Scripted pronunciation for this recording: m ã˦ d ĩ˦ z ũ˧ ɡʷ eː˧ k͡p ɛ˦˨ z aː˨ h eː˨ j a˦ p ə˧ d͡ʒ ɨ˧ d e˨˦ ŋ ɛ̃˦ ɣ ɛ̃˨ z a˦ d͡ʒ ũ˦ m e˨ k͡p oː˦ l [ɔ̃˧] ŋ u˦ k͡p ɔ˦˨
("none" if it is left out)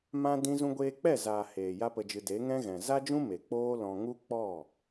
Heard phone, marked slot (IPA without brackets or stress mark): ɔ̃˧